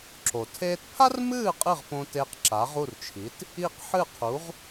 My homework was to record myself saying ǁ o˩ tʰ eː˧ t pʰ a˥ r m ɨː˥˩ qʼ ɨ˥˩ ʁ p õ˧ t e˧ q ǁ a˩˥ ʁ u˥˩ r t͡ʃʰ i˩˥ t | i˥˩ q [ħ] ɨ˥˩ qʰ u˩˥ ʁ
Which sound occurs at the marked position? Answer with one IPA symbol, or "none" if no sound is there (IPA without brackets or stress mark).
ħ